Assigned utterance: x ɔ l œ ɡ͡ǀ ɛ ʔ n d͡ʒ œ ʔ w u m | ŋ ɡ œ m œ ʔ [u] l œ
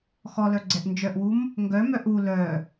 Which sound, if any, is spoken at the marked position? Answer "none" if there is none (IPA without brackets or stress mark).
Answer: u